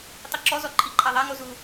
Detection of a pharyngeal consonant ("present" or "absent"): absent